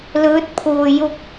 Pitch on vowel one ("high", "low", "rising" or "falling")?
rising